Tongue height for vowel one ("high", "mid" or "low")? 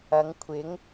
low